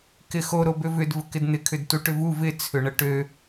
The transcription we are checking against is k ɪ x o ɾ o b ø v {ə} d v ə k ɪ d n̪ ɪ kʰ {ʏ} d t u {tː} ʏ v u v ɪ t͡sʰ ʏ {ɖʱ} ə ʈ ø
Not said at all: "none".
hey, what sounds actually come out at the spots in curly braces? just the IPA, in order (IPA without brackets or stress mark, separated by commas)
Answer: ʏ, ʏ, ʈ, ɳ